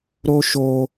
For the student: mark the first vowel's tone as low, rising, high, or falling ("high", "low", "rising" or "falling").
high